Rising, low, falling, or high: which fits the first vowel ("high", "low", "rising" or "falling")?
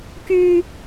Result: high